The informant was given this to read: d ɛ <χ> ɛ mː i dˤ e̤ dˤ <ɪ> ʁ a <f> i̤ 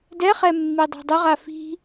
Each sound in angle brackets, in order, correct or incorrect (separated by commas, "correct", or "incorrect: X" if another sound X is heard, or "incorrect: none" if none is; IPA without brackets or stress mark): correct, correct, correct